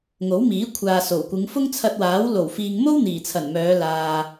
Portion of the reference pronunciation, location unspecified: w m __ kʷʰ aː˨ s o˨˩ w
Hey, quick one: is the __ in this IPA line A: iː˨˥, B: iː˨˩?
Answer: A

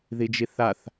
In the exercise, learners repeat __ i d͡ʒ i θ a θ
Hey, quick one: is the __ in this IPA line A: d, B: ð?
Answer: B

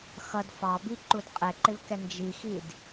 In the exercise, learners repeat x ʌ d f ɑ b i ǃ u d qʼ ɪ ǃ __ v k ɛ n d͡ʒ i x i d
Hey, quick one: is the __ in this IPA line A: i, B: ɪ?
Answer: B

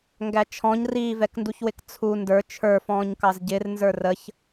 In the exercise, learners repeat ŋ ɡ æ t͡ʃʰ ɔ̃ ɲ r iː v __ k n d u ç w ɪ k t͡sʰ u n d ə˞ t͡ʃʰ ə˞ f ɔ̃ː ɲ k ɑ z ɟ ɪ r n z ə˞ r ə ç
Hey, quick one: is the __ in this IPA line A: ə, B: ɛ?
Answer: B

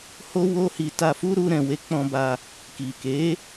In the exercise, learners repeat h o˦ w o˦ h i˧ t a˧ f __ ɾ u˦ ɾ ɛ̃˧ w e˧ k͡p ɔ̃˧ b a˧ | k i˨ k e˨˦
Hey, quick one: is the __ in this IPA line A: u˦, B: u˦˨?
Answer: A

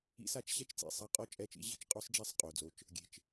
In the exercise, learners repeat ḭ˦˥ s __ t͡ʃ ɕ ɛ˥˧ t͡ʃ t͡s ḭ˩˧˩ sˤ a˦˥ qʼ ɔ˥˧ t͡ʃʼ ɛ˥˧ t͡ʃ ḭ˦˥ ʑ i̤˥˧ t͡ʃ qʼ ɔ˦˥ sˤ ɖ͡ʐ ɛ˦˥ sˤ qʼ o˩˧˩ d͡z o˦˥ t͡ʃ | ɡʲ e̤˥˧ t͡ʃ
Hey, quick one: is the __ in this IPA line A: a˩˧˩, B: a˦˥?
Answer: B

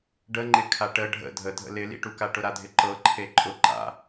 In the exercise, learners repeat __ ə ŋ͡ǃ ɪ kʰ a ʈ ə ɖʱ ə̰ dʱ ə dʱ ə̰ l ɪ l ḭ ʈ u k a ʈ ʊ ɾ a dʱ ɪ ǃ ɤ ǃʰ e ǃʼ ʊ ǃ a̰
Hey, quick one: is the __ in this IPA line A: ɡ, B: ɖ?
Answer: B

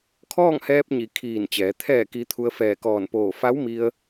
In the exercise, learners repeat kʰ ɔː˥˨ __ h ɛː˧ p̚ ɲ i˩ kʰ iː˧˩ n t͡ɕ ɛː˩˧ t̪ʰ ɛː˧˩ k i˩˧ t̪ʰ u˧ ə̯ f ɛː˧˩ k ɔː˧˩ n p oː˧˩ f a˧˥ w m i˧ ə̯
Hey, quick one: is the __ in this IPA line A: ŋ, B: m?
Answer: A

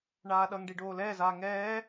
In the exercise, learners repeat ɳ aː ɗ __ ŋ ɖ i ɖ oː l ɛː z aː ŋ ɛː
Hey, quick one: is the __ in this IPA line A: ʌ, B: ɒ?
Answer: A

